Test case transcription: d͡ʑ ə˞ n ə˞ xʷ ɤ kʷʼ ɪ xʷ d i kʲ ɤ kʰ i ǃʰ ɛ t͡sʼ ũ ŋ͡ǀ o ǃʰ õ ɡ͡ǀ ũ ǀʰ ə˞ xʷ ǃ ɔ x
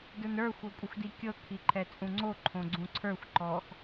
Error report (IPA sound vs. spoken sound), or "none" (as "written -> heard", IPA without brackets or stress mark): d͡ʑ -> d